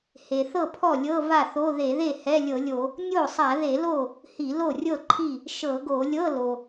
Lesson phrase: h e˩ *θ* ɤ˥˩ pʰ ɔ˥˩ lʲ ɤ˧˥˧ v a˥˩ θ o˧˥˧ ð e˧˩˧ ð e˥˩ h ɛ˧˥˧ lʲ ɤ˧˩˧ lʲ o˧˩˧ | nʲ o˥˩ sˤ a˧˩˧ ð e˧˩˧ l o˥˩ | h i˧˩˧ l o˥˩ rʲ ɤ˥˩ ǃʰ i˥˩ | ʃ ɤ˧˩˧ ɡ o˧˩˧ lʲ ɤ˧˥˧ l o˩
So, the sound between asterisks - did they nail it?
yes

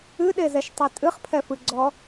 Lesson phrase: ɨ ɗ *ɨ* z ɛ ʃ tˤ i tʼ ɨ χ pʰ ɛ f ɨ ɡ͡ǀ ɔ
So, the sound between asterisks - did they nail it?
no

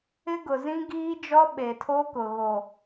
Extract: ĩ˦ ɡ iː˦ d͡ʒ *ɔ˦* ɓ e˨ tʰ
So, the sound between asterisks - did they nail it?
yes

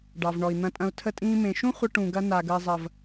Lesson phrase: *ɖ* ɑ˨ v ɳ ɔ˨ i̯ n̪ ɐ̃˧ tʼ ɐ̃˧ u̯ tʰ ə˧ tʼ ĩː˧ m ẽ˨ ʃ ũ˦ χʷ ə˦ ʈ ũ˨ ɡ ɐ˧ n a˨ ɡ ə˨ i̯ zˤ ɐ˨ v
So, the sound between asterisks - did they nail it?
yes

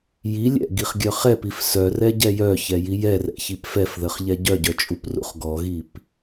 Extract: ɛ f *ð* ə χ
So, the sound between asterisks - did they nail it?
yes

